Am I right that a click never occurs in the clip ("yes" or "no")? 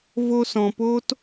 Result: yes